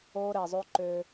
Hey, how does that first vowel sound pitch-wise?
high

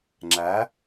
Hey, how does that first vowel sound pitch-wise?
rising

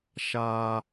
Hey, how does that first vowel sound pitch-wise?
high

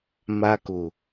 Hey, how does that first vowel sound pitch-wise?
high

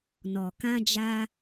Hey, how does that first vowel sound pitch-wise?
low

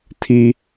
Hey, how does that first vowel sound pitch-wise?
high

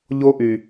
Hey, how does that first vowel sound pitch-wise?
high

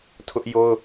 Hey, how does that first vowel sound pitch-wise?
high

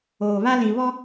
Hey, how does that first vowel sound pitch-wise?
low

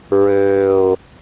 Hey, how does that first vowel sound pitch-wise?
low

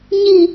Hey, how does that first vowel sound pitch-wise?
falling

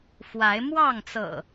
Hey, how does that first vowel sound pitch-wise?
rising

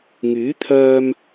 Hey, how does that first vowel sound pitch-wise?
rising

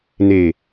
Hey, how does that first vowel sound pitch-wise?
low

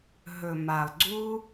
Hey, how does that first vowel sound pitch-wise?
low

